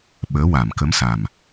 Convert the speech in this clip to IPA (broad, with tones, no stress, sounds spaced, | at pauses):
ɓ əː˧˥ w a˨˩˨ m k ə˧˥ m s a˨˩ m